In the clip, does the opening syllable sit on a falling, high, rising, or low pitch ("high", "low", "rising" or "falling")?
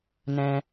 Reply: high